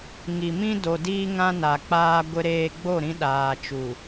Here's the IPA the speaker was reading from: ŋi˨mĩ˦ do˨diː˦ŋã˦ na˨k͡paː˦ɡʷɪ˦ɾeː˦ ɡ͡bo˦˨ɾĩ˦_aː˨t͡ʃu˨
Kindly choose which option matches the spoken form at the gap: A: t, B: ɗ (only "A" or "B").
B